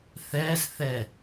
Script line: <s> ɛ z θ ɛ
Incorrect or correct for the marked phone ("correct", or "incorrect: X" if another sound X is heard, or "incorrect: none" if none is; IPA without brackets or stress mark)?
incorrect: θ